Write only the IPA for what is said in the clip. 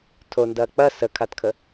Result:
tʰondɐː k͡pɐ səkʰatkʰə

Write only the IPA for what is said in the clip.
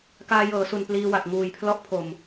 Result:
kaː˧ jɤː˩˦su˨˩n pliː˧ wa˨˩k̚ŋuː˨˩j pʰlɔ˦˥ʔpʰo˨˩m

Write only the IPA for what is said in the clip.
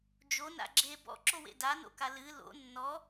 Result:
d͡ʒo na̰ɡ͡ǁe bɔ̰ǁowḛ dano̰ka lɨ lo̰ nːɔ

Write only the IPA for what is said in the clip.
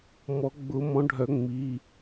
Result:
mɔ˨˩˦ɡ͡bʊ˨˩˦mɔ̃˨˦ɖʱœ˨˩˦ ŋ͡mi˩˧˩

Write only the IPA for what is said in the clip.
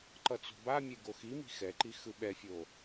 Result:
ǃʌt͡so̤bamʲe ɡoximi̤ xɛǃi xɯɓɛfʲo

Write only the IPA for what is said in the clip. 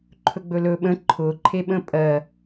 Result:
ǃʰɵɡ͡bɵlɵ ɓə̃ ǃʰʊ ǃʰeɓə̃pʼɜ

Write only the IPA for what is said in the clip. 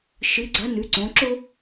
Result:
ʃɨ˧˥ɡ͡ǀɐ˧˥ nʉ˧˥ǀõ˧˥ ǁo˥

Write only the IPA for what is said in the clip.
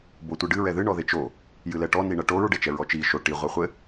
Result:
botʷɨɖɨ ɹɛðɨ ɳɔðet͡ʃo | jɨlɛʈɔ niɳɐʈoɹ ɖet͡ʃɛɹɔt͡ʃi ʃo ʈi ʁʷɛχʷɘ

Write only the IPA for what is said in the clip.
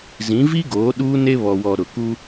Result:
zĩ˨˦vi˦ɡoː˨˦ ɗuː˦ne˦ βɔ˨wɔ˨ ɾʊ˨ku˦

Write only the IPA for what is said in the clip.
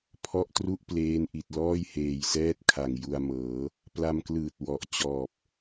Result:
pʰɔ˦˥ʔtru˥˩ʔpleː˧nʔi˨˩t̚ lɔː˥˩jheː˨˩jsɛː˥˩t̚kʰa˨˩ŋ ju˧a̯ mɤː˩˦ | pla˧mklɯː˨˩t̚ wɔ˨˩ʔ t͡ɕɔː˨˩p̚

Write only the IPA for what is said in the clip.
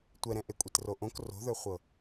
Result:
tʷɛɾɛ̃ ʔekʷʼetroʔõk ro̤ðə˞χʷɤ

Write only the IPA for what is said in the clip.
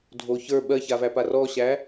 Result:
dʱo çə˞ ɓɜçavæpa rɔɕæ

